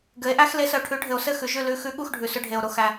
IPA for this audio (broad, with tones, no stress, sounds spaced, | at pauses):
ɡ ɘ˩˥ e̯ ʔ æ˥ x l e˩˥ s ə˩ o̯ ʈʰ ʉ˩˥ ɖʱ ɘ˩ o̯ s ɘ˥˩ x ʉ˩ ʒ ʉ˥˩ l ʉ˩˥ x ʉ˩˥ ɠ u˥˩ x ɖʱ ʉ˩ s ɵ˧ ɖʱ e˩ o̯ ɾ o˧ x æ˩